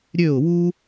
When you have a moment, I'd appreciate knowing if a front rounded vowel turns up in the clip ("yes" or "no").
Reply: yes